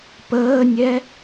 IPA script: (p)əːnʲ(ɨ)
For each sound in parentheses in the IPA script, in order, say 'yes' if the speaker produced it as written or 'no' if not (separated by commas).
yes, no